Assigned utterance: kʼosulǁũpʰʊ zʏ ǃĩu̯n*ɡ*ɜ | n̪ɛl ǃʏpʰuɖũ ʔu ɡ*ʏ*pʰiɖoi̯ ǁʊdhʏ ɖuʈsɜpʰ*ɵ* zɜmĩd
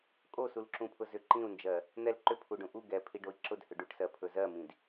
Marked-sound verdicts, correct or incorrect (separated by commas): incorrect, incorrect, correct